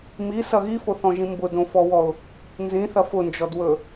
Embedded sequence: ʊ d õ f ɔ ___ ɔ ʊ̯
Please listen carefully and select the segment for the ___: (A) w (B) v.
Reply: A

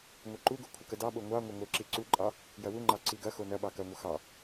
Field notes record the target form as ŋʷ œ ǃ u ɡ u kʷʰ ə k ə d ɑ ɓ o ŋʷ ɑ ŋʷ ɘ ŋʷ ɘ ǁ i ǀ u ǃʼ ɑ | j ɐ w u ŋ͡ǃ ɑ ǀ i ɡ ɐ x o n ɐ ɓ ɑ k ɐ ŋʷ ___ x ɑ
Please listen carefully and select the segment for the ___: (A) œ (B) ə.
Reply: B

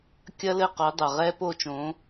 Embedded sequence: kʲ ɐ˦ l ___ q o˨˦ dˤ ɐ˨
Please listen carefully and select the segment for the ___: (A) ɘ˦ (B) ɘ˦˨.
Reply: B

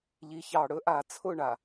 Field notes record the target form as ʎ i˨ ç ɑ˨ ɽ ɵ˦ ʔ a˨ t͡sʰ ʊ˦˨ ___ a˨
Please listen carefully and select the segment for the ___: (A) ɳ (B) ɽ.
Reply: A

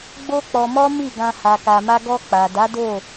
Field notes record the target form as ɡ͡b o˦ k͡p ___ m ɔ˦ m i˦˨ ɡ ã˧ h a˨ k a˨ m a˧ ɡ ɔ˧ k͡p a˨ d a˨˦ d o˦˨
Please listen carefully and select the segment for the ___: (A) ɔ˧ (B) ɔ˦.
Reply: A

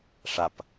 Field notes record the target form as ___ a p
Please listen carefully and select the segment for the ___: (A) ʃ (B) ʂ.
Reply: B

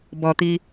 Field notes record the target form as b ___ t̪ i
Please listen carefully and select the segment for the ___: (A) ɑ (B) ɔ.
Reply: B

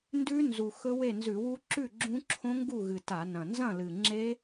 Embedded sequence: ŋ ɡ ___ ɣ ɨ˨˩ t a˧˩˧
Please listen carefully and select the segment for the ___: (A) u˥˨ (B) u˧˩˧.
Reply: A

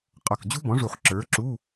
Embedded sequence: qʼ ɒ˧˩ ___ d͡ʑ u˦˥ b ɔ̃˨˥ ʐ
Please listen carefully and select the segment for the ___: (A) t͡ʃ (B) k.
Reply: B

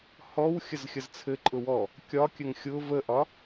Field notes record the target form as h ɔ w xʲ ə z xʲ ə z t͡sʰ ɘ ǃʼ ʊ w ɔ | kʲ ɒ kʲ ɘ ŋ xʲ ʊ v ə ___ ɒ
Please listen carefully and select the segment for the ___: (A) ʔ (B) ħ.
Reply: A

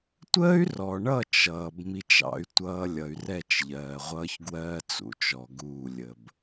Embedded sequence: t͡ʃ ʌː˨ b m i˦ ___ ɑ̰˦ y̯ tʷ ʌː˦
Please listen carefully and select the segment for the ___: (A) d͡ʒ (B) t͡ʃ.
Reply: B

